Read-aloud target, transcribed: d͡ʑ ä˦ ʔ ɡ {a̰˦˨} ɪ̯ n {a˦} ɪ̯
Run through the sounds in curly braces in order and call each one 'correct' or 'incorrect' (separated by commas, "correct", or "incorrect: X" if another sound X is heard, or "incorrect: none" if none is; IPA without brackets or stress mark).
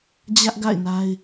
correct, correct